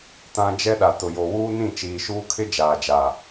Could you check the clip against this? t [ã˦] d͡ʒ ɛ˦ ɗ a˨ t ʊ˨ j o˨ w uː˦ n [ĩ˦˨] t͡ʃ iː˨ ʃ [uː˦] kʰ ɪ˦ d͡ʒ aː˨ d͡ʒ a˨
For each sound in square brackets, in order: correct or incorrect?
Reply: correct, correct, correct

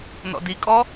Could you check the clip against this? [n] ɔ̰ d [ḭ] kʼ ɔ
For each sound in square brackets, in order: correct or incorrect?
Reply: correct, incorrect: i

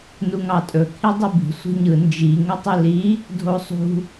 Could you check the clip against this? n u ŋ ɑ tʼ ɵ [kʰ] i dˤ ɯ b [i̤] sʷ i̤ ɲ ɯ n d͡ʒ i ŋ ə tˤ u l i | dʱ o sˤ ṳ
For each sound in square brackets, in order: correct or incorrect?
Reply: correct, correct

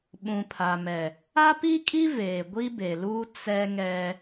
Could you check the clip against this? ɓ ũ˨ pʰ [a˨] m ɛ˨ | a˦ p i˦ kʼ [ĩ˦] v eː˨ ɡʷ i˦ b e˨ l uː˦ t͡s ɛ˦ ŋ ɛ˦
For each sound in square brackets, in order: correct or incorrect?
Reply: correct, incorrect: i˦

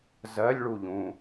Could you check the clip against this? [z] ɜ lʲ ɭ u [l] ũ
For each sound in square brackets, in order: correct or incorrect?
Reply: correct, incorrect: ʎ

